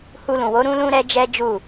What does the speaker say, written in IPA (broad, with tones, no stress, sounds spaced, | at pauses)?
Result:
h u˧ l ũ˨ w o˨˦ ɾ ũ˧ l ũ˦ ɾ ɛ˦ d͡ʒ ɛ˦ d͡ʒ u˦˨